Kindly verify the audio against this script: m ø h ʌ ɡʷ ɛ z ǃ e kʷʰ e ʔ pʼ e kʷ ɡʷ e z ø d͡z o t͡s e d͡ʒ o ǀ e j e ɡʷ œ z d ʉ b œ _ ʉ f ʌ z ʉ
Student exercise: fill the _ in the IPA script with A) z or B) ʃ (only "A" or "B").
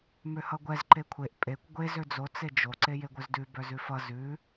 A